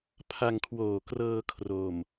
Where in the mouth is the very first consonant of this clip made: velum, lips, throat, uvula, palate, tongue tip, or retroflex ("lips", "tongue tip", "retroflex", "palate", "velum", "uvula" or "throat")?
lips